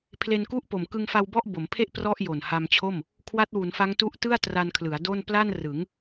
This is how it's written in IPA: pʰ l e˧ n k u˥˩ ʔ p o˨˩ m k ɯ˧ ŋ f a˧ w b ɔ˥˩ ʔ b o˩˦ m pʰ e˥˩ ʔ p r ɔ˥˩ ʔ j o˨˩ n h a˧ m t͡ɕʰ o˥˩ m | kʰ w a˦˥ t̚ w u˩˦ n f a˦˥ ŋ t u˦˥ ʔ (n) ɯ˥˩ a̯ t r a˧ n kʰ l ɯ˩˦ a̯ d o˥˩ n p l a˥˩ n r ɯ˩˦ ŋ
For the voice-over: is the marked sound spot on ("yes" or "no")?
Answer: no